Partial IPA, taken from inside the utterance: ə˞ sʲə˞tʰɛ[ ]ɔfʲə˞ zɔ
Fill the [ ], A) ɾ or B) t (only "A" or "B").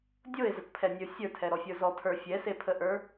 A